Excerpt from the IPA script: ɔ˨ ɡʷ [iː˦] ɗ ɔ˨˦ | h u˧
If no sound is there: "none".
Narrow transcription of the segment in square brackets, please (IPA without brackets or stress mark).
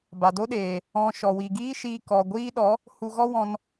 iː˦